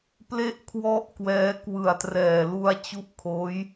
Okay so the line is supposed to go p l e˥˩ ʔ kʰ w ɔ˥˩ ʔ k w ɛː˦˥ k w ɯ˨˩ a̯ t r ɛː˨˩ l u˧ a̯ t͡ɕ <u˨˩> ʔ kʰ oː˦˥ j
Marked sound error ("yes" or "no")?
yes